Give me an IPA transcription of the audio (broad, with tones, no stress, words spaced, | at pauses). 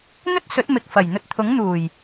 n̪ɵ˥t̚sɵ˨˥t̚ mɪ˨k̚ fɐ˨˩j n̪ɵ˧t̚t̪ʰʊ˨˥ŋn̪uː˨˩j